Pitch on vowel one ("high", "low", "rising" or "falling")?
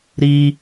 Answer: low